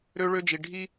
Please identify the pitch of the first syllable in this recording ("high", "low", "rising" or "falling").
high